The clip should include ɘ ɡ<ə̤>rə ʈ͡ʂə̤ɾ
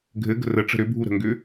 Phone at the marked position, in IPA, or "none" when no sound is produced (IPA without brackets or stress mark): ə̤